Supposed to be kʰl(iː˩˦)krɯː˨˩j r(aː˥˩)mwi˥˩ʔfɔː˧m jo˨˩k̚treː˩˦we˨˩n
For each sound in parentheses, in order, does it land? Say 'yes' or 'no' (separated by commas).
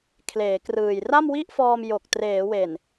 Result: no, no